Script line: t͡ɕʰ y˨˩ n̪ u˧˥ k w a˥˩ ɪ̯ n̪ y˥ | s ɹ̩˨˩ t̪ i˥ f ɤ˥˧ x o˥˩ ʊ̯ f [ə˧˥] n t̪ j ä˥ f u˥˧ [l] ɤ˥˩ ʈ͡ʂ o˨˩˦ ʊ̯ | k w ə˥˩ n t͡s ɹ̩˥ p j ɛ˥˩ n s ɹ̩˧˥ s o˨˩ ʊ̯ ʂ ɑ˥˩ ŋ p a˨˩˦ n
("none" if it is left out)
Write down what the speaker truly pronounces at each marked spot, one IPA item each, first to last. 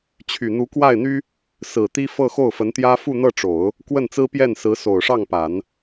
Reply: ə˧˥, n̪

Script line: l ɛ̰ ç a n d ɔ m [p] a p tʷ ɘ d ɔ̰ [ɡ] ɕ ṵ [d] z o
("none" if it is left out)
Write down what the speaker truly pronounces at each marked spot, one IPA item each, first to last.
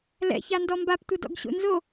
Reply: b, ɡ, n

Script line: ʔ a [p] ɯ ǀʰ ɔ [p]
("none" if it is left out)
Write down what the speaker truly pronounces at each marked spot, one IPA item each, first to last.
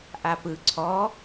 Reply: p, none

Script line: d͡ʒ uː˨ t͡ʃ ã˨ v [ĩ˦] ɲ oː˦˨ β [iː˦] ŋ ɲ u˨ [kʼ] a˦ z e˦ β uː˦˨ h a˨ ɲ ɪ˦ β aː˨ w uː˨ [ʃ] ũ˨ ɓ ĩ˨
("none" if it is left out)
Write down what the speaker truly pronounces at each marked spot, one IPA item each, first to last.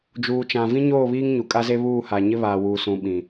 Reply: ĩ˦, iː˦, kʼ, s

